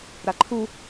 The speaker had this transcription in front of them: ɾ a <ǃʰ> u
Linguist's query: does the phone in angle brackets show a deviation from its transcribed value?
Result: no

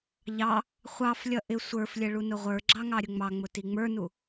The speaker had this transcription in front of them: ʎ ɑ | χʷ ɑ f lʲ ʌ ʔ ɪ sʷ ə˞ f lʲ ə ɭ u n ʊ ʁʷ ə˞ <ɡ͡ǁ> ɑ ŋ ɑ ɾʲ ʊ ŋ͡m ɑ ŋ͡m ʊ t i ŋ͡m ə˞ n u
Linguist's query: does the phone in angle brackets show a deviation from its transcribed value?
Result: no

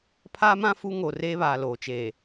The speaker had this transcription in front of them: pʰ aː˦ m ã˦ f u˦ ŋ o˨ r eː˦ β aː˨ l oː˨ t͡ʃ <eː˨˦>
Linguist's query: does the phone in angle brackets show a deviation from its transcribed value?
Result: yes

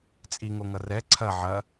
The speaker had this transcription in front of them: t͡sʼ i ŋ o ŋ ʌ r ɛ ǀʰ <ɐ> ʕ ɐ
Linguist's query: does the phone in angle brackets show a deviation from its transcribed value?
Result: no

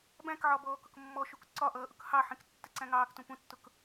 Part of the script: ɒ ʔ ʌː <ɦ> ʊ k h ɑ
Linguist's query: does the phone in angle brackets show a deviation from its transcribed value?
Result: yes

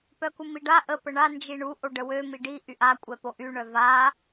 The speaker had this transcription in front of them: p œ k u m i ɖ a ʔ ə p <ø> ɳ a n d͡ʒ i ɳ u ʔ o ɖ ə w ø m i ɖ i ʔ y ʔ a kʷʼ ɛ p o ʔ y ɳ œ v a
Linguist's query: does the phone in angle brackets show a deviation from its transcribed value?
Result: yes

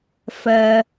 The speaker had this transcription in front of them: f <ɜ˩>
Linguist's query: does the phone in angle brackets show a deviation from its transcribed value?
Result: no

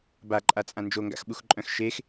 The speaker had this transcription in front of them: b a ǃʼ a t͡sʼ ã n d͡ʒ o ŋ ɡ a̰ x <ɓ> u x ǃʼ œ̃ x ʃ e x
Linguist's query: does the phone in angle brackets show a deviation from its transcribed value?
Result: no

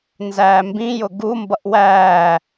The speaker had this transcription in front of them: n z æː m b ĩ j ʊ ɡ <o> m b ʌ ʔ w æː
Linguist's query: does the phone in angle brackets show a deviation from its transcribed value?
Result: yes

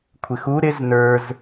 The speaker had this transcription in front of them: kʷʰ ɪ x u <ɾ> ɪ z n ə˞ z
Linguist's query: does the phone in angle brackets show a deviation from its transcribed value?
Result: no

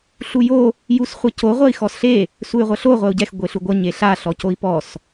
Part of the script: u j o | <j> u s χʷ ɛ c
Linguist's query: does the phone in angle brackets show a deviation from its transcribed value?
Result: no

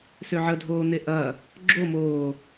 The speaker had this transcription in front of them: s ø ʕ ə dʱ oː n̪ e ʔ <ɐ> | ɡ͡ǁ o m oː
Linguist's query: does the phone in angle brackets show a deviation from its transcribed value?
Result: no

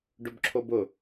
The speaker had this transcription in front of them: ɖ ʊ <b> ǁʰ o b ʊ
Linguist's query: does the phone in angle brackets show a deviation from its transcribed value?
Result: no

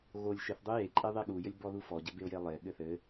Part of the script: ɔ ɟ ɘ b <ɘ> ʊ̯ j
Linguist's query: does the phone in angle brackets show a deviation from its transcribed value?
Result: yes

